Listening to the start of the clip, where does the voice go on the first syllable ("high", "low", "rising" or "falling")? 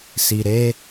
low